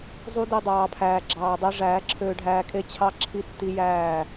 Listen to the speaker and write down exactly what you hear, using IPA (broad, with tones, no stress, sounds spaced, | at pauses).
zˤ u˦ d i˧ dˤ ɑː˨ pʰ æː˨ ɡ͡ǁ ɑː˨ dˤ ø˧ ʐ æː˨˦ ǁʰ øː˧ ɖʱ æː˧ kʼ e˦ t͡ɕʰ ɑ˦ ǁʰ i˦ tː i˦ j æː˦˨